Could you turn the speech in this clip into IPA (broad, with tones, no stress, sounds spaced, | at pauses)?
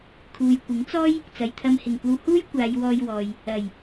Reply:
kʰ uː˨ j kʷ ɪ˨˥ ŋ t͡s ɔː˥ j | t͡s ɐ˨ j t̪ʰ ɐ˧ m h ɪ˨˩ ŋ kʷ ɐ˧ w h uː˥ j kʷ aː˨˧ j w ɔː˧ j w ɔː˨ j | ɐ˨˩ j